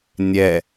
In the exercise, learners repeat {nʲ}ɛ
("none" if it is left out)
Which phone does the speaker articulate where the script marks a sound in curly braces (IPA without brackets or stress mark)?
nʲ